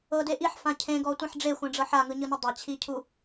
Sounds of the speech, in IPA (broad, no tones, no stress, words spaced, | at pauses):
ɤde ʔiħfã cʰẽɡɔtʷẽħ ɖ͡ʐexʷɛ̃ɖ͡ʐɤ ħaŋɯɲɯnu dˤat͡ɕʰicʰu